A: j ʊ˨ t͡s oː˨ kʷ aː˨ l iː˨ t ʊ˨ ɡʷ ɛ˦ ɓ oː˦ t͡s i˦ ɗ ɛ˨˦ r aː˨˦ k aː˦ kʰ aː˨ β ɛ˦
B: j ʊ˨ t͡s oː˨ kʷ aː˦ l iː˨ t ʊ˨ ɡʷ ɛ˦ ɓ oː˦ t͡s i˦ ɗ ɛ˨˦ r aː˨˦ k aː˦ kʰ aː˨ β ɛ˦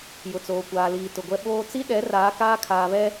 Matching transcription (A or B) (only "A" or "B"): A